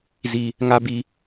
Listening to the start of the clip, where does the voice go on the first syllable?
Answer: low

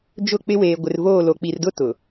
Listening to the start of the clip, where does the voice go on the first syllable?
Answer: falling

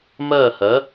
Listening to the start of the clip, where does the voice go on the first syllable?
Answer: falling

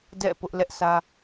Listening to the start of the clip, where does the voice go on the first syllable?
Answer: falling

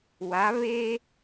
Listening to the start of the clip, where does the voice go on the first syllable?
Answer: rising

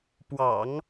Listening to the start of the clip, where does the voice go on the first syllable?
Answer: low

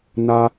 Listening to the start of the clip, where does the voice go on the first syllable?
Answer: low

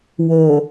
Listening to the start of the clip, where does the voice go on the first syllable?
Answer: low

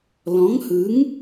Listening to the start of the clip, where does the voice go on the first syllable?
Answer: rising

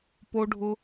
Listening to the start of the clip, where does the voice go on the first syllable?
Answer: high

